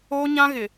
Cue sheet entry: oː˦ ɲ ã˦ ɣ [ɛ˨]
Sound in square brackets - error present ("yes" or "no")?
yes